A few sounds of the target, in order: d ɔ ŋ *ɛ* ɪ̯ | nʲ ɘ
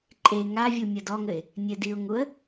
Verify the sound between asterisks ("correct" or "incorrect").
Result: incorrect